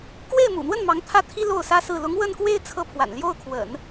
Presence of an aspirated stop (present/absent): present